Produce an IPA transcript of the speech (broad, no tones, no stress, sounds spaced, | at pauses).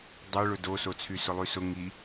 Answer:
dˤ o ɭ ʊ d o s o t͡sʰ y s ʊ lˠ y s ʊ ŋ i